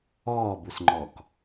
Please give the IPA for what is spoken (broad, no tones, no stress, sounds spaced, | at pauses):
ɔː b u s ŋ͡ǃ ɔ k